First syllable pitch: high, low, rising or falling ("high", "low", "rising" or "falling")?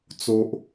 low